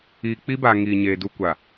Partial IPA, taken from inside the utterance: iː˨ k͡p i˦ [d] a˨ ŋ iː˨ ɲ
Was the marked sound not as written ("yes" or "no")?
yes